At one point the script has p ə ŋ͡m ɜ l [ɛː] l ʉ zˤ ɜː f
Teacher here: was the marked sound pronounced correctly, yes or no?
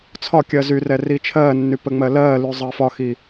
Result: no